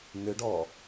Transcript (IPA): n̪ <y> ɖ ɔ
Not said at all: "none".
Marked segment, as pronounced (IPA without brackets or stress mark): ʏ